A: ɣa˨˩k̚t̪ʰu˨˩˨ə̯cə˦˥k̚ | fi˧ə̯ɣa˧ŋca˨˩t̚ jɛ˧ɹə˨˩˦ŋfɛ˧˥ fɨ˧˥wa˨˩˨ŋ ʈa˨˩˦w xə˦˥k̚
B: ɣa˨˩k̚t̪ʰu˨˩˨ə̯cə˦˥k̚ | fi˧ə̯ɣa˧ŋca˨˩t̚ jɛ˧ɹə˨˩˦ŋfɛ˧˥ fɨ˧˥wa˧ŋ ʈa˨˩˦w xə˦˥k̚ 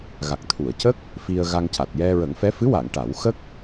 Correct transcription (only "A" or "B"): A